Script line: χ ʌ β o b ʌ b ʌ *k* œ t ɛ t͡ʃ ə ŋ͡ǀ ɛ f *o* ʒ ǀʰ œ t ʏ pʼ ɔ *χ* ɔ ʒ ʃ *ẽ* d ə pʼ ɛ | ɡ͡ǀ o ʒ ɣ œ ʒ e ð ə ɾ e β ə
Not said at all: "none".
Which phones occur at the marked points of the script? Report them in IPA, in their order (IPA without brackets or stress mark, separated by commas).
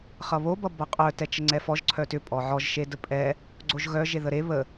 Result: qʼ, ɔ, ʕ, e